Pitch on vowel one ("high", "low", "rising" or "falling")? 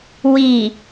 low